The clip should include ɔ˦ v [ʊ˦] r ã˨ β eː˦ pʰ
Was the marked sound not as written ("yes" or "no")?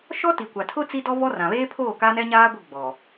yes